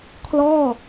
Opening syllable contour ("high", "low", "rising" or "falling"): falling